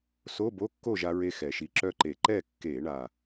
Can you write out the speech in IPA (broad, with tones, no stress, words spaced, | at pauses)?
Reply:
so˧˥˧bo˧˥˧kːo˥˨ ʒa˥ɹe˥xɛ˨˩ʃi˧˥ ǁœ˥˨ǃe˧˩˧ ǃɛ˥˨kːe˧˩˧ɳa˨˩